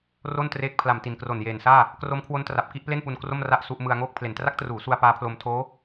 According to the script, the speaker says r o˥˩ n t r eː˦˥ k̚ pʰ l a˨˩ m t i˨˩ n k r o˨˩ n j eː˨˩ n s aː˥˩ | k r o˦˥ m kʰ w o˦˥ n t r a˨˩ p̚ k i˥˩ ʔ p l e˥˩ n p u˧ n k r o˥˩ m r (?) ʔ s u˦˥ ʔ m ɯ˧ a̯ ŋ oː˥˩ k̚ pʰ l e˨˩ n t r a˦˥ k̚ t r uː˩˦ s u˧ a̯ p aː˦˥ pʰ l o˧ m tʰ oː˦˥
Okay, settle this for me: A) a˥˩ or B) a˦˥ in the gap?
B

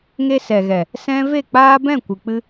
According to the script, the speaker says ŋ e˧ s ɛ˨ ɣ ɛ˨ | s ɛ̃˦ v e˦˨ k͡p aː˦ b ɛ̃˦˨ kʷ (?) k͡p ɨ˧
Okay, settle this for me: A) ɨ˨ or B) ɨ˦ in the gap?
A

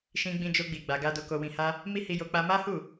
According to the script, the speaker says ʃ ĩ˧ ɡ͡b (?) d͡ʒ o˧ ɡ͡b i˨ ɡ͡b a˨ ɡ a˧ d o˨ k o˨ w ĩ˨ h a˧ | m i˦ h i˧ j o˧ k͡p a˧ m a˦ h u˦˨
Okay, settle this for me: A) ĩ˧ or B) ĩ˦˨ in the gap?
A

